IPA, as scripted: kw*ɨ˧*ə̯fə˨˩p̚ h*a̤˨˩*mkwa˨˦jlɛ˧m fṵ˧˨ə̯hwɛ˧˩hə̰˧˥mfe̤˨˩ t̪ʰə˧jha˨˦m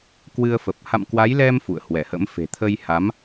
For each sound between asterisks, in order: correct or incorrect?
correct, incorrect: a̰˧˨

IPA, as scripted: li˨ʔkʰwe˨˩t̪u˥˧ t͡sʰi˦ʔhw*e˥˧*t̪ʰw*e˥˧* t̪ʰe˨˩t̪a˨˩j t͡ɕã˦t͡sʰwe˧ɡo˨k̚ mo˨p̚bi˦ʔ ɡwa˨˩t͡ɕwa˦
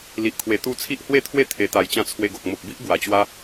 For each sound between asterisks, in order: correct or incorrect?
correct, correct

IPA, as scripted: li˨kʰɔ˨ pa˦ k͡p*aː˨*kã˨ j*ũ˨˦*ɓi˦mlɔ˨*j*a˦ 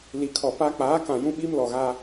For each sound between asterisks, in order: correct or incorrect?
incorrect: aː˨˦, incorrect: ũ˦, incorrect: ɣ

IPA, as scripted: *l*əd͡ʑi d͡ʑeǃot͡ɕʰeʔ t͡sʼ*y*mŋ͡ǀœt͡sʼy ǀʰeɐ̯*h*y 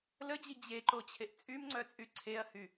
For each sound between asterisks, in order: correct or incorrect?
correct, correct, correct

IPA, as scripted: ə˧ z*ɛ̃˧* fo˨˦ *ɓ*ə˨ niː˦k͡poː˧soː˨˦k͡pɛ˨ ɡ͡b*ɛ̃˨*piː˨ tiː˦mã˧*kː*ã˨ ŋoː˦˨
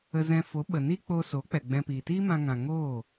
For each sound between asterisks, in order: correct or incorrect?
correct, correct, incorrect: ɛ̃˧, incorrect: ŋ

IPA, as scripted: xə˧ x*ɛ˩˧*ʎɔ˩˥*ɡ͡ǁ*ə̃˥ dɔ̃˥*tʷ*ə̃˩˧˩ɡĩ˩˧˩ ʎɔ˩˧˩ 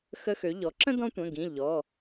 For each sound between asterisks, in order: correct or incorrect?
incorrect: ø˩˧, incorrect: ǁ, correct

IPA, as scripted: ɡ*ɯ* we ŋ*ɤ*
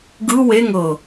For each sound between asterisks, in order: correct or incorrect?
correct, correct

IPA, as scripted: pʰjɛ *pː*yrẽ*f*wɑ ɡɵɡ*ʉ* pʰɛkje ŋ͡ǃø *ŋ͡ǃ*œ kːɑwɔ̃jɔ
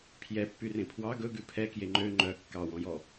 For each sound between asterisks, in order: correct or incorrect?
correct, incorrect: pʰ, correct, correct

